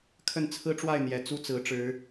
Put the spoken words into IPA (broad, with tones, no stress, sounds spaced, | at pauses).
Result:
kʰ ə˥˨ n t͡sʰ ɹ̩˦ ʈ͡ʂ w a˥˨ ɪ̯ n̪ j ɛ˨˩ t͡s u˦ t͡s ɹ̩˨˦ ʈ͡ʂ ɻ̩˨˦